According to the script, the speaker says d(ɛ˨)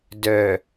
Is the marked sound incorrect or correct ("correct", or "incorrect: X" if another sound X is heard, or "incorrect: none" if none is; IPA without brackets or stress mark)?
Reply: incorrect: œ˨